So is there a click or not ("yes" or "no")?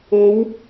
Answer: no